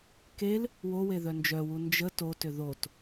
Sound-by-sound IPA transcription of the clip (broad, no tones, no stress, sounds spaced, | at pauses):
k e l | w o w e ð œ n d͡ʒ œ w u n d͡ʒ ə t o t ʏ ð o t